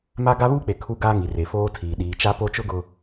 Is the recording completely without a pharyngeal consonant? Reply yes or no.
yes